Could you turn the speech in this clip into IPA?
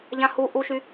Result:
ʎ ã h u ʔ u ʃ y

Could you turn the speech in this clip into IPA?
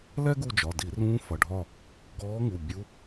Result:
l ɛ˥ ɡ u˦˨ d͡ʒ ɒ˩˧˩ d i˧˩˧ r ũː˧˥ f ʌ˩˧˩ ɖʱ ɒ˦˨ | ɡ ɔː˧˥ ŋ u˩˧˩ bʲ u˧˥

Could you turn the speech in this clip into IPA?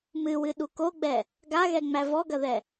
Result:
m ɨ w ɨ ɗ u k o ɡ͡b ɛ | ɡ a ɣ ɛ ŋ͡m æ v ɔ ɡ ɐ ð ɛ

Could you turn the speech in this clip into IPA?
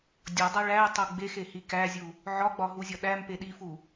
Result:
dʲ ɒ dˤ æ ɭ æ y̯ tˤ o ɡ͡b e x e h i k æ zʲ u | ʕ ɒ ɡ͡b ɒ ɦ u zʲ ɒ ɗ æ m p e ɗ i f u

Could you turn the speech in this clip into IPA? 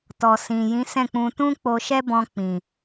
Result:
t ɔ˨ s ĩ˨ j ĩ˨˦ s ɛ̃˦˨ k͡p ũ˧ t ũ˦ k͡p o˧ ʃ ɛ˦ b ɔ̃˧ k͡p ĩ˨

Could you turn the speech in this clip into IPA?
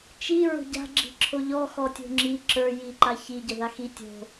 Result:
t͡ʃ i ɹ o̤ ɟ a̤ ɡ͡ǁ i̤ ǁʰ o ʎ ɔ x ɔ tʲ o̤ ŋ͡ǁ i ǁ ə˞ j i ǃ a ç i ɟ ə ð a x i tʲ o̤

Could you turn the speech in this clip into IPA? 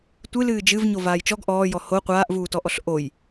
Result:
tʷ ɨ l ɨː d͡ʒ ɨ v ɲ o v aː j t͡ʃ ɔ ɡ ʔ ɔː j ɔ h o qʷ aː ʔ v uː t ɔ ʔ ɔ ɬ ʔ o j

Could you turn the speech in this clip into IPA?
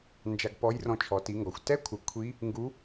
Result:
n d͡ʒ a˧ ɡ p ɔ˧˥ j r ɔ̃˧ t͡ʃʰ ɔ˩˧ t i˩˧ ŋ ɡ ɔ˩ xʷ t ɛ˧˥ kʷʰ ə˩˧ kʷʰ i˧˥ | ŋ ɡ u˧˥

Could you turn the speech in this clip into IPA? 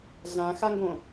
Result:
ɮ ã x a ŋ ɡ õ

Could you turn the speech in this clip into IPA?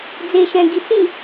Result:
d͡z e ʃ ɛ̃ ɡ i t͡s ĩ

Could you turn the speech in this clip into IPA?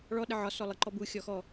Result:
ɭ ɔ ɗ ə ʕ ɒ s ɔ lˠ ə ǃ ɔ b u xʲ ɔ x ɔ

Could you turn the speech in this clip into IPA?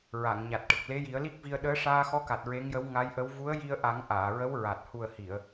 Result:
ɹ a˨˩˨ ŋ ɲ a˨˩ t̚ ʈ ə˨˩ k̚ l e˧˥ j i˨˩˦ ə̯ l i˦˥ k̚ v i˧ ə̯ ɗ əː˧˥ ʂ aː˧ x ɔ˧˥ k a˨˩ t̚ ɹ e˧˥ ŋ j ə˧˥ w ŋ a˧˥ j ʔ ə˧˥ w v u˧˥ ə̯ j i˧ ə̯ ʔ a˨˩˦ ŋ ʔ aː˨˩˨ ɹ ə˧˥ w ɹ a˨˩ t̚ h u˨˩ ə̯ h i˨˩˨ ə̯

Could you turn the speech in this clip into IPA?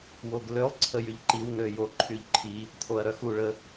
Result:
w o ɡ l ø lˠ ǀʰ ə j y ʎ ǃ i w n ø j o ǃʰ y ʎ ǃʰ i | tʰ o ɐ̯ ɾ œ x u ɭ ə

